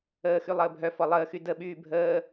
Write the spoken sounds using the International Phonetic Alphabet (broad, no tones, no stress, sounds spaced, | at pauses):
əː x y lˠ əː bʱ œ f ɔ lˠ əː x y d ə ɓ yː bʱ əː